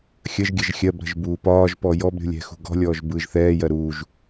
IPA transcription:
xʲ ə ʒ ɡʲ ə ʒ xʲ ɜ b ɾ ə̤ ʒ b uː p ɒː ʒ p ɔ j ɔ b ɾʲ ṳ lʲ ɛ̤ x ṳ ɡ ɔ̤ lʲ ɔː ʒ b ɯː ʒ θ ɛː j ɜ ɾ u ʒ

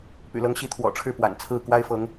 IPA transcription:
p y̰˨˩ l ɤ˧˥ ŋ ɕ i˧˥ t̪ʰ w ɔ̰˨˩ ʈ͡ʂʰ ɻ̩˥˩ p w a̰˨˩ n t͡sʰ ɹ̩˥˩ k w a˥ ɪ̯ f ɤ˧˥ ŋ

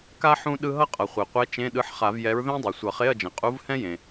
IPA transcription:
k a˥ ħ ũ˥ ɗ ɯ˥ ɦ ʌ˥ qʼ ʌ˩ χʷ e˩ qʷ ɛ˧˥ t͡ʃ ẽ˧˥˧ ɗ ɯ˧˥ ħ χ a˨˩˦ v j ɛ˧˥ ɹ ð ẽ˥ dˤ u˩ sʷ ʌ˨˩˦ χ e˧˥˧ ɐ̯ d͡ʒ ẽ˩ qʼ u˧˥ v h ɛ̃˥ j ẽ˩

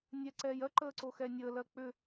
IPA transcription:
nʲ ɛ ǀ ɛː j ɜ ǃ əː ǀ o x ɛ nʲ əː l ɜ k͡p ʏ

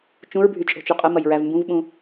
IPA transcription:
t͡ʃ ũ ɹ bʱ y t͡ʃʼ o̤ t͡ʃ u qʼ ə m ɐ j ɹ æ v m b ũ v ɓ ũ

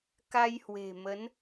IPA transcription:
k a˧ j h w e̤˨˩ m ə˨˦ n

